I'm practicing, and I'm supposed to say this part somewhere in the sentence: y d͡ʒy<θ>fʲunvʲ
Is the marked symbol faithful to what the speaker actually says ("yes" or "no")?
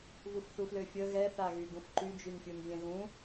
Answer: no